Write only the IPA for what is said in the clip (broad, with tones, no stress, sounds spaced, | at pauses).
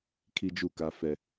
kʰ i˦ d͡ʒ u˦˨ k a˦ f ɛ˦